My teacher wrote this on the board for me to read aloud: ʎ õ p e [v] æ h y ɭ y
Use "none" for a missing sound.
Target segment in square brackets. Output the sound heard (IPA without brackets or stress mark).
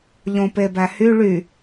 b